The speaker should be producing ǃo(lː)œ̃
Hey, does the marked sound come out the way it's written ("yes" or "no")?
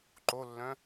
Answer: yes